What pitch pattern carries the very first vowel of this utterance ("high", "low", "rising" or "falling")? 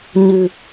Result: low